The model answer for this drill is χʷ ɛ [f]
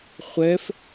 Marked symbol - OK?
yes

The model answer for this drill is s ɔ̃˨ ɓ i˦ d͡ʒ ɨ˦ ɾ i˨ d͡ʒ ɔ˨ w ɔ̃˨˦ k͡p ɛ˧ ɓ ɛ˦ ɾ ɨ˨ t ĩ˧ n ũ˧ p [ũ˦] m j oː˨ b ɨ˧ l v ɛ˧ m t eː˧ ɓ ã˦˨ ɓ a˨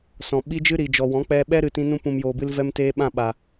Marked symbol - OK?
no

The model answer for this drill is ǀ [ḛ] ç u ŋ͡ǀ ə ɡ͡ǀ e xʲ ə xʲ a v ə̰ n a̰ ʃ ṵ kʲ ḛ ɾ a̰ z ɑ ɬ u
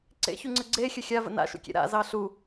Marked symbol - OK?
yes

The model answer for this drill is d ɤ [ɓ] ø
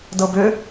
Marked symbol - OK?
no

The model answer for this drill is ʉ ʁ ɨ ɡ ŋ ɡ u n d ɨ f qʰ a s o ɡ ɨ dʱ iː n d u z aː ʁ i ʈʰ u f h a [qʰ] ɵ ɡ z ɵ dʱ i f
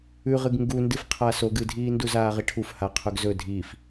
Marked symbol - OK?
yes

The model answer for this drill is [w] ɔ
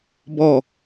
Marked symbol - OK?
no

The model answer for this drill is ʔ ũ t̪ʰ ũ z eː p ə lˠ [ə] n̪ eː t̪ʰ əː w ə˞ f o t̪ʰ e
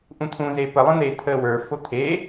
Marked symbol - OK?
no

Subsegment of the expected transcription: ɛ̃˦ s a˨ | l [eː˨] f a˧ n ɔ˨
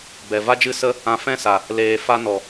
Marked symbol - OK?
yes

